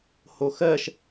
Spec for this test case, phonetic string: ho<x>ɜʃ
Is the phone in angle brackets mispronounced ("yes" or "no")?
no